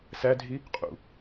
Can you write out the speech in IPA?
s æ dʱ i | qʼ ṵ

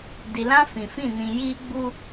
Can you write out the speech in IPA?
d i˨ l ã˦ f ĩ˨ f ĩ˦˨ n ĩ˨ j iː˦ ɡ͡b u˦

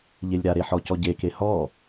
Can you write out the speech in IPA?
ʎ e lʲ ɾ a ɾ e ħ ɔ c ɔ ɟ e k e h ɔ

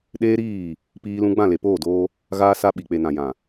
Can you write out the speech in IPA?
ɗ eː˦ ɾ iː˦˨ | p iː˦ l ũ˦ ɡ͡b ã˦˨ l e˨ p oː˦˨ d oː˦ | ɣ aː˦ s a˦ ɓ i˨ k͡p e˨ n ã˨ j ã˨

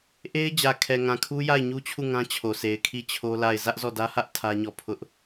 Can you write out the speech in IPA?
ʔ e˦ ɪ̯ d͡ʑ ä˨ kʰ ɛ˨ ŋ ã˨ kʰ u˦ j a˦˨ ɪ̯ ɲ u˦ t͡ɕʰ u˦˨ ŋ ã˦ t͡ɕʰ o˨ sʰ e˨ ɪ̯ kʰ i˦˨ t͡ɕʰ o˦ l a˦˨ ɪ̯ z ä˦ ʔ z ɔ˦˨ d ä˦ h ä˦ ʔ tʰ ä˦ ɲ ɔ˦˨ pʰ ʊ˦ ʔ

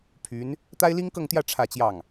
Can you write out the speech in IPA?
pʰ y˧˥ n | t̪ a˥ ɪ̯ l i˥ ŋ k ɤ˥˧ ŋ t̪ j ä˥˧ ʈ͡ʂʰ ä˥˧ t͡ɕ j ɑ˥˩ ŋ

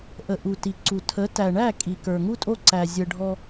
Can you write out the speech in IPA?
ʔ ə˨ ʔ u˨ t i˨ ǀ u˨ tʰ ə˨˦ t æ˨ ɳ æ˦˨ kʼ i˨ k ə˞˨ ŋ u˦ tʼ o˦ ǀ æ˨ zʲ ə˨ ɖʱ ɔ˦

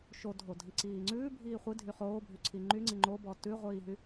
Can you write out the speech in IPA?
ʃ o dʱ o dʱ i ǀ iː ŋ͡ǀ ʉː bʱ iː χʷ i dʱ y χ oː bʱ y ǀʰ i ŋ͡ǃ y ŋ͡ǀ i ŋ͡ǃ o b ɔ t ʉ ʁʷ iː ɦ y

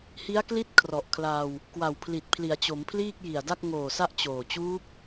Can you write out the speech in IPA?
h i˦˥ a̯ k l i˥˩ t̚ kʰ r ɔ˨˩ ʔ kʰ l a˧ w | k w a˨˩ w pʰ l i˨˩ t̚ pʰ l i˩˦ a̯ t͡ɕ o˩˦ m pʰ l iː˥˩ k̚ j i˨˩ a̯ d a˥˩ k̚ ŋ oː˨˩ s a˦˥ ʔ t͡ɕ oː˨˩ t͡ɕ uː˦˥ p̚

